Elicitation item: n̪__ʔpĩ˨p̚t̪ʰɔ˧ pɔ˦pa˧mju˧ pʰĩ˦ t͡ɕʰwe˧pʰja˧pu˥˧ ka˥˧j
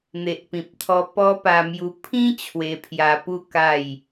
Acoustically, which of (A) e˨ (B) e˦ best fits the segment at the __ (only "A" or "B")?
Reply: A